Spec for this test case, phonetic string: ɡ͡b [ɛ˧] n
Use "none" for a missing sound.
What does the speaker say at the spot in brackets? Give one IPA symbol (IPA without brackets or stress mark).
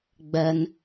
ɛ˧